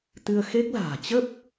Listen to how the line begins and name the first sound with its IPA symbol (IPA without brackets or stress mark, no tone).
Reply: t̪